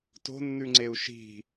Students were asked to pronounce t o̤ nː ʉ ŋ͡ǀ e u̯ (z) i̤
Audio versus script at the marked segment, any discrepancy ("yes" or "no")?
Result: yes